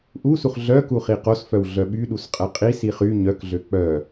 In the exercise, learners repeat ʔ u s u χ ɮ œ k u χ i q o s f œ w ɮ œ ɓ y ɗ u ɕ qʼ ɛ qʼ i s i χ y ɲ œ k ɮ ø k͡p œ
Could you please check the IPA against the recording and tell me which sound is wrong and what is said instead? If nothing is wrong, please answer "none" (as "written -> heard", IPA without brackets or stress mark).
ɕ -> s